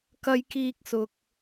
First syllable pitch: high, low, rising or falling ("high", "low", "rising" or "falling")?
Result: high